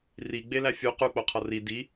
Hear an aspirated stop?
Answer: yes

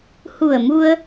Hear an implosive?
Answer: no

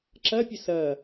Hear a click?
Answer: yes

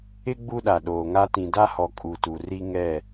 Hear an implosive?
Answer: yes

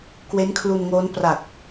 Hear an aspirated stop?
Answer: yes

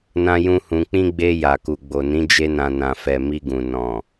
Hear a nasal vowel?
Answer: yes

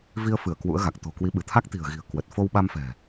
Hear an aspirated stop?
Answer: yes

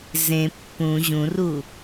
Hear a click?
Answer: no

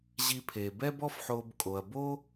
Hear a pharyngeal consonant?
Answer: yes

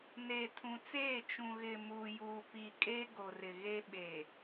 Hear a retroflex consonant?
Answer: no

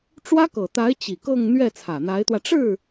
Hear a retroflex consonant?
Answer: yes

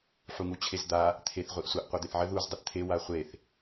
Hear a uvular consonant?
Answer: yes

